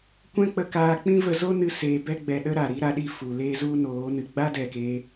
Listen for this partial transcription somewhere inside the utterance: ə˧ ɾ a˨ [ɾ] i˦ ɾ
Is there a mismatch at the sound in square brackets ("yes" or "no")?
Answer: no